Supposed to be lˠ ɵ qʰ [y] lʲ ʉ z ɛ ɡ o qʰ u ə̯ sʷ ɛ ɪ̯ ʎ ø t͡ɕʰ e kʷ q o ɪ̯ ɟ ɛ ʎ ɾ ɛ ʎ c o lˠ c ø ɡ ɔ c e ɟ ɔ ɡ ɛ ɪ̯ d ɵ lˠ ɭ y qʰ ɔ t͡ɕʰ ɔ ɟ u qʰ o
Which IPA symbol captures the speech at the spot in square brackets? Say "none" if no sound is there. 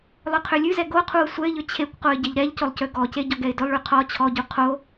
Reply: ø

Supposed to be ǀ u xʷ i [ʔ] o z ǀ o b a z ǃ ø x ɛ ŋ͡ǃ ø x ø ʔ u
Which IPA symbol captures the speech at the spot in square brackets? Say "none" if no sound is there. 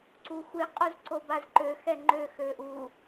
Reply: qʼ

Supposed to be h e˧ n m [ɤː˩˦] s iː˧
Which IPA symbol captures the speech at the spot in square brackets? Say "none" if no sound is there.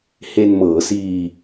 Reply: ɤː˩˦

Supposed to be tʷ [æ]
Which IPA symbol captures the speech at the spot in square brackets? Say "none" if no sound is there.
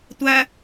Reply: æ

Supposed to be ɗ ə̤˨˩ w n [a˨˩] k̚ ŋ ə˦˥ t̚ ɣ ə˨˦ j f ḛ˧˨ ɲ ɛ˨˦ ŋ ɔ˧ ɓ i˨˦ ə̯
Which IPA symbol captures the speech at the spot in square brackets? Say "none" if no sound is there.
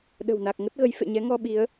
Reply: a˨˩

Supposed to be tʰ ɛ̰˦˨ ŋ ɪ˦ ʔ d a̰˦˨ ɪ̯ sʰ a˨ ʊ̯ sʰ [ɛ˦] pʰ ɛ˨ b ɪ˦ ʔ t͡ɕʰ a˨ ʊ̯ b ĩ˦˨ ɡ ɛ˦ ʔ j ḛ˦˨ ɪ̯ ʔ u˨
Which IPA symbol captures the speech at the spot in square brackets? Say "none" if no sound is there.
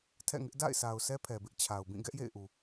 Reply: ɛ˦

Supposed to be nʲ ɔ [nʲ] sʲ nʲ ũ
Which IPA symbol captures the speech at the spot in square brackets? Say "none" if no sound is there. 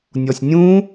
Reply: none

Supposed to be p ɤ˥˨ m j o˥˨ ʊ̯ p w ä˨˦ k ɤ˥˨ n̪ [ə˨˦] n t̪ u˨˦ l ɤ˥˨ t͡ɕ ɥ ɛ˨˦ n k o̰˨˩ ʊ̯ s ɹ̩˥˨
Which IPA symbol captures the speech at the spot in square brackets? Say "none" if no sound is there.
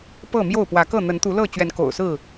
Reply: ə˨˦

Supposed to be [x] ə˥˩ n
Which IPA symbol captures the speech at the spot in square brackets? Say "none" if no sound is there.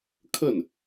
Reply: kʰ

